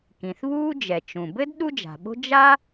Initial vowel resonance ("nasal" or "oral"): nasal